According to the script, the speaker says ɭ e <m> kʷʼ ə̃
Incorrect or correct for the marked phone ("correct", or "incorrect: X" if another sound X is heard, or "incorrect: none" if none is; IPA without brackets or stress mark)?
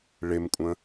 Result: correct